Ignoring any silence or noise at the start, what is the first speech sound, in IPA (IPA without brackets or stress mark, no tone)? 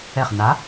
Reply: ɛ